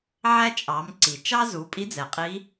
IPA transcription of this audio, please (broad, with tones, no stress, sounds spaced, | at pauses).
ʕ æ˥ t͡ʃʼ ɑ˩˧ m ǀ i˩ t͡ʃ ɑ˥ z u˩˧ pʼ i˧˥ d͡z ɛ˩ qʼ i˧˥